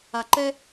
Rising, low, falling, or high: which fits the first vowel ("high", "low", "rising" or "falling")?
low